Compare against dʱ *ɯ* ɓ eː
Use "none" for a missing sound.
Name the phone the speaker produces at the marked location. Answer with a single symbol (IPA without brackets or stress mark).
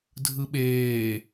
ɯ